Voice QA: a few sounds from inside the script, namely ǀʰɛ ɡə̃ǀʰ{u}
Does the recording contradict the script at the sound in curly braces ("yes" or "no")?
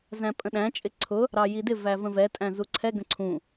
yes